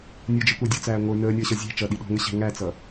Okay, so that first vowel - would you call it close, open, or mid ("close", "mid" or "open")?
mid